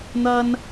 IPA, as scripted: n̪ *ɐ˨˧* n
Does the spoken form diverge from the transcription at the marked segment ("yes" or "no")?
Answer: yes